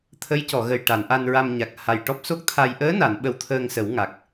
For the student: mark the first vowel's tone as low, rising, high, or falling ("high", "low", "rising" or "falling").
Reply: rising